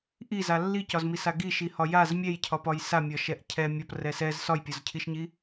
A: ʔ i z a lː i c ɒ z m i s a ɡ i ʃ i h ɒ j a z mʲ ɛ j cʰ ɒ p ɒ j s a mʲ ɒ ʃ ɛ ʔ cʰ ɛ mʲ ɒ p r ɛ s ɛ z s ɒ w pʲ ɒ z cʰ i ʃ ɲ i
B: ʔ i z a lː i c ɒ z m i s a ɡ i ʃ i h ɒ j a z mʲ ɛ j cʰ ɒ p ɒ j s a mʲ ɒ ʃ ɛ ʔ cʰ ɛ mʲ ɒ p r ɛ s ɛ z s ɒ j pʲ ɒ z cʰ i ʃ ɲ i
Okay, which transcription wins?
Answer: B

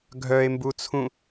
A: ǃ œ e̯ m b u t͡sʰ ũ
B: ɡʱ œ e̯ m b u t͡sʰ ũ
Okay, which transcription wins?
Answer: B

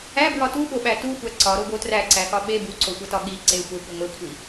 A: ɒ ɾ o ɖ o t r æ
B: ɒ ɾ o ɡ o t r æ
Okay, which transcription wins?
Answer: B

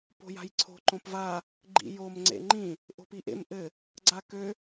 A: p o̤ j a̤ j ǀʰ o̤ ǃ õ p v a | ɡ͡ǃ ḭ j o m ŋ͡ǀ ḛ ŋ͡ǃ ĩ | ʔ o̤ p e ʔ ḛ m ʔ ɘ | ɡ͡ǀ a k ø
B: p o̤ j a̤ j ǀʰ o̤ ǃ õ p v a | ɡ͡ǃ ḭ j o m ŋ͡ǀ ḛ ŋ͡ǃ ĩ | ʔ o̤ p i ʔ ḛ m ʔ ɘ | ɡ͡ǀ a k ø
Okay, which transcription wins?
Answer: B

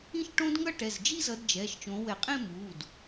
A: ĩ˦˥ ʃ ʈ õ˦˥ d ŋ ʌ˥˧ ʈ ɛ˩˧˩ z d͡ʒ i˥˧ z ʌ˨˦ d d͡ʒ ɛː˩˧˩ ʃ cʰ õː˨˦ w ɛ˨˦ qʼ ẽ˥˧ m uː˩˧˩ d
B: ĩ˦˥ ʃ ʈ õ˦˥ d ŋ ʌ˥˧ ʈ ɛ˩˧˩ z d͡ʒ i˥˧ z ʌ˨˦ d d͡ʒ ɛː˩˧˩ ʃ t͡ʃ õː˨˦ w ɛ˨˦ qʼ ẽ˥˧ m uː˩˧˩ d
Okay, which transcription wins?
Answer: B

